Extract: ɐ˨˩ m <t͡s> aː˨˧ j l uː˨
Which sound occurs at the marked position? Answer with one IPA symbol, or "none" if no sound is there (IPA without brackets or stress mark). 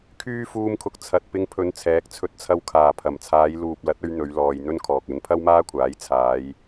t͡sʰ